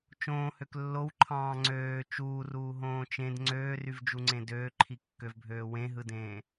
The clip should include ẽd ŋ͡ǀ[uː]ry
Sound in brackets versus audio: incorrect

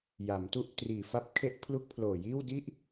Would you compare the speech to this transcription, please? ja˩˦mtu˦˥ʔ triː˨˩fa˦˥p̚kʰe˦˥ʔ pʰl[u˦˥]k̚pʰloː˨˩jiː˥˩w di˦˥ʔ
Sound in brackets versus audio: correct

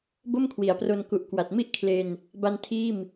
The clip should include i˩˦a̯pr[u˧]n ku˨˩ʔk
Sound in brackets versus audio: incorrect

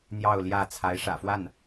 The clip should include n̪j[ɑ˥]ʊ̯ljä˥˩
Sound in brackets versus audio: incorrect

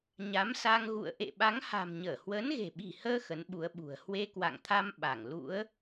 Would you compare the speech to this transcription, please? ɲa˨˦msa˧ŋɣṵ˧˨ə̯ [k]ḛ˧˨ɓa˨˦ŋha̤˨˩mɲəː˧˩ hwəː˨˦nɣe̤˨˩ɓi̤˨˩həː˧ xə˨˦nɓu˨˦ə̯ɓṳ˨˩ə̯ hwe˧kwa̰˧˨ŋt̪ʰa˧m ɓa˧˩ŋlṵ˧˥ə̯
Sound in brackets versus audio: incorrect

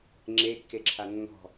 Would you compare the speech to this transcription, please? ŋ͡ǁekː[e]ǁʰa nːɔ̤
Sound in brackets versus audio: correct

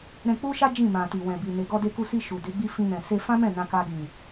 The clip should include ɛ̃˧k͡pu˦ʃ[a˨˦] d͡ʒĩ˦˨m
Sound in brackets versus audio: incorrect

